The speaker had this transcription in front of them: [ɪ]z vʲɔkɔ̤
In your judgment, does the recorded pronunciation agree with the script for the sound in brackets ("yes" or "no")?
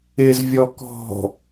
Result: yes